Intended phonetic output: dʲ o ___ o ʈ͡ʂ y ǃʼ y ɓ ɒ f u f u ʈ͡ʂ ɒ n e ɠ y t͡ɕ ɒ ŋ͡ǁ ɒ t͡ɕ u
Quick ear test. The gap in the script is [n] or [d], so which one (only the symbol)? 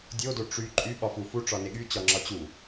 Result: d